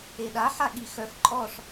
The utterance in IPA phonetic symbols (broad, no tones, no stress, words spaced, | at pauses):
eɗa ħaɠixœf ǃʼɔʂ